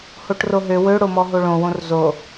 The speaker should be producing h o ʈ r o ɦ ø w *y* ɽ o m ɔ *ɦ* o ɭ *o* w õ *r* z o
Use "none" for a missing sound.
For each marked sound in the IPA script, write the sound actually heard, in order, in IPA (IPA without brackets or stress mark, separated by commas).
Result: ø, ɦ, õ, r